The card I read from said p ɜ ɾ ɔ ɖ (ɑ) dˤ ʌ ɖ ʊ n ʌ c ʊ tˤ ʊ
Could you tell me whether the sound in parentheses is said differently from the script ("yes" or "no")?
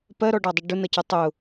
no